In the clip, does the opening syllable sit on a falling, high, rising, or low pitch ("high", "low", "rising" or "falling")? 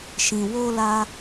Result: low